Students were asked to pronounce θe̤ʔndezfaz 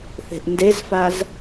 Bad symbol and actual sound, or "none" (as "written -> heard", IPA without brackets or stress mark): none